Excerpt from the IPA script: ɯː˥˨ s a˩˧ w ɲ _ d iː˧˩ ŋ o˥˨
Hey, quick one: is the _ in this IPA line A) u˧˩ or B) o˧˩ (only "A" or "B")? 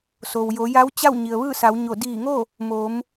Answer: B